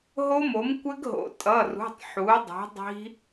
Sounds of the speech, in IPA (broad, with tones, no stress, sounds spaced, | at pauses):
ɦ o˦˥ m o˩˥ m kʷ ɘ˦˥ ɡ ɦ o̰˩˥ tʼ ʌ˩˧˩ r ṳ˩˧˩ tˤ ħ u˩˥ dˤ i̤˩˥ dˤ i̤˦˥